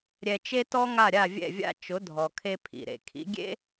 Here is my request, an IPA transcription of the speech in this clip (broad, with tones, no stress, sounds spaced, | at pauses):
ɾʲ ɛ˧ t͡ʃ e˥ t ɔ˥ ŋ a˥˩ ɾʲ a˥˩ vʲ ɛ̰˥˩ vʲ a̰˥˩ t͡ʃ ʊ˩˥ dʱ ɔ˩ kʰ e˧ pʰ ḭ˩ ɾ ḛ˩ kʰ ḭ˩˥ ɡʲ ḛ˥